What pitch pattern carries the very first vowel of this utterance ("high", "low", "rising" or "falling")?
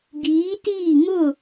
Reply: rising